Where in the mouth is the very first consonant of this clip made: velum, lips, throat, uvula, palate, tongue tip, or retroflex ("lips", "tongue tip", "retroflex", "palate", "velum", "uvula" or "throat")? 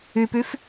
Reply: lips